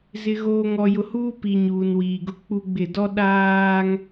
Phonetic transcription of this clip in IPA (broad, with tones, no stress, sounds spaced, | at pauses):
z ɪ˨ ɣ oː˨ ŋ ɔ˨ j ʊ˨ h uː˦ p i˨ ɲ uː˨ n w iː˨ ɡ ʊ˦˨ k͡p u˦ ɡ͡b ɪ˦˨ d ɔ˦ ɗ aː˦ ŋ